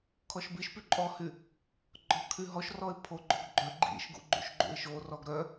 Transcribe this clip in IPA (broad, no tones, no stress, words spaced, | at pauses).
kʰɔʃbiʃpy ǃʼɔhy | ɡ͡ǃɔkʰyɦɔʃrɔɪ̯ pʰoɡ͡ǃoɡ ɡ͡ǃœ ɡ͡ǃḭʃɡṵ ɡ͡ǃṵʃɡ͡ǃṵɪ̯ʃorɔɡ ɾœ